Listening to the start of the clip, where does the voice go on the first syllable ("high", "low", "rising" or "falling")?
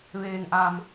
low